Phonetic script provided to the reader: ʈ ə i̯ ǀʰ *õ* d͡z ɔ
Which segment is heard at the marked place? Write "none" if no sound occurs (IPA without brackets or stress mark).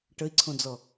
õ